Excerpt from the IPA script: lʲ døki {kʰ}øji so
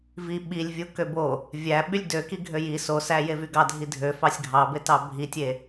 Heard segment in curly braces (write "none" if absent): ɡʱ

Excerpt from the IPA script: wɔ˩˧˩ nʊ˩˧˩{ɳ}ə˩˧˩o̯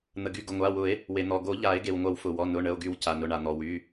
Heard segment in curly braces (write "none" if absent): ɳ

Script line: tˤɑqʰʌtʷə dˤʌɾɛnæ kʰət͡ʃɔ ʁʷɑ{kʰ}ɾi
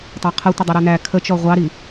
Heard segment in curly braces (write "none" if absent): none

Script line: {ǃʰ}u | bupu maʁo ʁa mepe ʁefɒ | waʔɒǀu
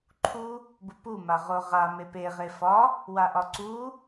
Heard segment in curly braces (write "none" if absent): ǃʰ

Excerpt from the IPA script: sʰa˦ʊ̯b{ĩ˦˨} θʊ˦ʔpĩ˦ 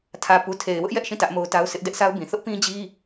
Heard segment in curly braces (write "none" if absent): ĩ˨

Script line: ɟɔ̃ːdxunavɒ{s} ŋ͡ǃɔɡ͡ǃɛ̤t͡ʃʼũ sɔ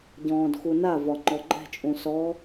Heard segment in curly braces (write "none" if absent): none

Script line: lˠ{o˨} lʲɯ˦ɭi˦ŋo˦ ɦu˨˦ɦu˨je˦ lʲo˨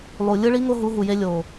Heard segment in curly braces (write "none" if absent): u˨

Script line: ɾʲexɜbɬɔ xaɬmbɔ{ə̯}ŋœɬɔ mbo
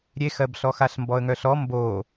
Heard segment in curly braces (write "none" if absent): ə̯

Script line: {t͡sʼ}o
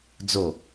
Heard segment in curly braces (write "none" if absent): d͡z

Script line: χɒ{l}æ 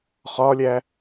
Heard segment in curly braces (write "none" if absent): lʲ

